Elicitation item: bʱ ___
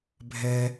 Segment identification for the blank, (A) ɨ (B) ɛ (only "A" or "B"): B